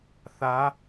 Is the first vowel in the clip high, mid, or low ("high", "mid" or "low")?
low